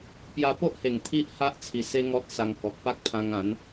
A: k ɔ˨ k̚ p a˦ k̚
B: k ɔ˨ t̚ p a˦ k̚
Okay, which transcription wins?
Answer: A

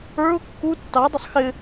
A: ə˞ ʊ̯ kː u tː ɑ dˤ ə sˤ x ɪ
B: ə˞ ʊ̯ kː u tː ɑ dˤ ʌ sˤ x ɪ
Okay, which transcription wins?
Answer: A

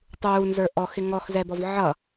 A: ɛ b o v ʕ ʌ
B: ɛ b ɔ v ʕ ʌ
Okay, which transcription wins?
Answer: B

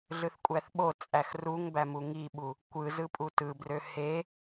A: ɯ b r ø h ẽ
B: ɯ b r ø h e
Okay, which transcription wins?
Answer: B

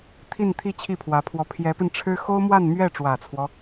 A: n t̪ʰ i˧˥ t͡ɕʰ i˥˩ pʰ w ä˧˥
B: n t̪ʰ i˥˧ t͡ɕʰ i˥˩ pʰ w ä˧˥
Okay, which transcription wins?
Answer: B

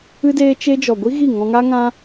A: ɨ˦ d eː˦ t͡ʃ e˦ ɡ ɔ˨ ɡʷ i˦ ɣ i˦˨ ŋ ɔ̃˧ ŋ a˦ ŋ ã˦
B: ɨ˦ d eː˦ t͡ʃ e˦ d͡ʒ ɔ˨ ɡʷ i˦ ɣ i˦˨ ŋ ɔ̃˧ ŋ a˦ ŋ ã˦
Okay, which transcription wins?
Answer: B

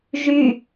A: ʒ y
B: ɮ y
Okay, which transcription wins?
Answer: A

